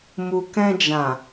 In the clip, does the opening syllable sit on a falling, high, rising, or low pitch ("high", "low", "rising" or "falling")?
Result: low